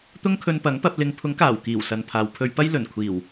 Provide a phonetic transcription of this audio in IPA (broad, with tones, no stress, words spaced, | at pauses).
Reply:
t̪ʊ˥ŋkʰɵ˧npɐ˨˥ŋpɐ˧p̚ lɪ˨˧ŋpʰʊ˨˥ŋkaː˨˩w kiː˨˩w sɐ˨npʰaː˨wpʰɵ˧ɥpɐ˥j lɵ˨˩n kʷʰiː˨˩w